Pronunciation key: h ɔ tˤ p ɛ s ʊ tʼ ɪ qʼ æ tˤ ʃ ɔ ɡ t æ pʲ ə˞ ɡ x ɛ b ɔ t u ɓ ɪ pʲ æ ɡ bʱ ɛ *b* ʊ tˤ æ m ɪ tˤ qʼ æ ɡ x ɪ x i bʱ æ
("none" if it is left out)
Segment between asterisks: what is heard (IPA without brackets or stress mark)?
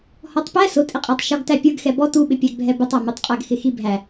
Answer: b